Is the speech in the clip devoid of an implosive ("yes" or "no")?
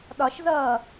no